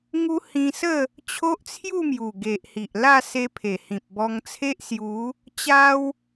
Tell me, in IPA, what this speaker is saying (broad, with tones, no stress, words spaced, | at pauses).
ŋu˦hĩ˧sə˥˧ | t͡ɕʰo˦ʔt͡sʰju˥˧mju˨˩ ɡe˨ʔhi˨ʔla˥˧ se˧pʰe˨˩hĩ˨p̚bɔ˧ŋ t͡sʰe˦ʔsju˨˦ | t͡ɕa˦w